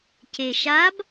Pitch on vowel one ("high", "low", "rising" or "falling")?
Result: low